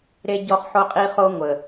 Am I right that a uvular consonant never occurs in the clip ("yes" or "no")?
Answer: no